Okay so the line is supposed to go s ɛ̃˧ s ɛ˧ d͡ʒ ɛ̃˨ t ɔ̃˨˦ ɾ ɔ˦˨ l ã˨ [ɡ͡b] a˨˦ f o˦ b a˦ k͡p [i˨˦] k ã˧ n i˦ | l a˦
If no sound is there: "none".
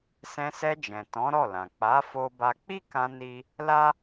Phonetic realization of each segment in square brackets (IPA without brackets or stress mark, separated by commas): k͡p, i˦